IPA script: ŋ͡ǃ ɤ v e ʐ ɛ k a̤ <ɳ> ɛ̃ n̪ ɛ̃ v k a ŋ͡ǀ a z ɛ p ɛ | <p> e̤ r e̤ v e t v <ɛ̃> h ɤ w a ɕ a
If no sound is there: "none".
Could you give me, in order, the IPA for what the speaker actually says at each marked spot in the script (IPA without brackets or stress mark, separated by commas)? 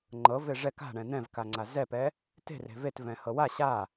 ɳ, t, ɛ̃